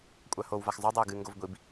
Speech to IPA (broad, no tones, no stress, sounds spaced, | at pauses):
kʷʼ a h o w v a x zˤ u dˤ ɐ u̯ ɡ ɨ ŋ ɡ o v ɡʷ i b